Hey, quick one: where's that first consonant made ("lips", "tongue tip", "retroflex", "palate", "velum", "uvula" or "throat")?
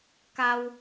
velum